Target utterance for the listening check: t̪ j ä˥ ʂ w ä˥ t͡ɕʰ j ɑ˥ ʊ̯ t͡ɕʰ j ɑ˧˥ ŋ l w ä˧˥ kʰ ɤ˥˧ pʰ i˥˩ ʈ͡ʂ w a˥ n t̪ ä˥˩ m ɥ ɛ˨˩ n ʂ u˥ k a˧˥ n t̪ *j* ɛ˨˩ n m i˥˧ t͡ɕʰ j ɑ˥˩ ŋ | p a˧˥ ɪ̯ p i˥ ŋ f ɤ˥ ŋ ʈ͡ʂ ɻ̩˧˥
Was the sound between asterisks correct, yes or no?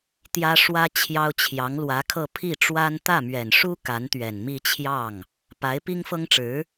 no